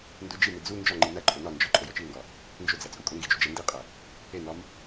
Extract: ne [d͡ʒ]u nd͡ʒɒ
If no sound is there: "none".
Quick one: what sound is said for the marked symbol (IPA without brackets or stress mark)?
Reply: d͡z